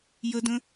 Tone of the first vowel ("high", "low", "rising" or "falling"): high